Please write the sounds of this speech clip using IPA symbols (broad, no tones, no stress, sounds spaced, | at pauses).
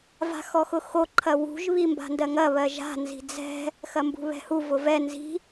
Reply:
v a̤ x ɔ x ʊ x o ǃʰ ɐ w ṳ ʒ β i m b a̤ n d ɜ ŋ ɐ β ɜ ʒ a̤ n z i̤ d͡z ɛ̤ | x ɐ m b ṳ β ɛ̤ h u v ʊ v ɛ n z i̤